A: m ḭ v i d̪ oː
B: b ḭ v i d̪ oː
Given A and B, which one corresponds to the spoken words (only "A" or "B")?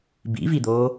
B